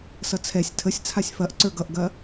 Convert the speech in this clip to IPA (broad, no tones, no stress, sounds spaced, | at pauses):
s ʌ t͡sʰ ɛ sʲ tʰ ə sʲ t͡sʰ a sʲ f ɐ ʔ ǀ ə˞ ɡ ʌ ʔ ɡ ɐ